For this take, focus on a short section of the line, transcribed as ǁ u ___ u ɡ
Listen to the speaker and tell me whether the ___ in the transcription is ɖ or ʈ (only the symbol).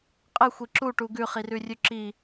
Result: ʈ